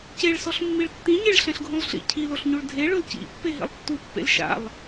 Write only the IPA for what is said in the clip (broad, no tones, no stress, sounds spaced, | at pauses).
c e ɭ s ɔ ɬ mː i ɭ tː ĩ ɲ e ɭ ɬ ɛ̃ ɬ ɡʱ ũ lˠ ɬ ḭ cʰ i l o ɬ ɲ u ɭ dʱ e ɭ ʊ l c ḭ pː e ɦ ḭ lˠ tː u pː ḛ l ʃ a̰ lˠ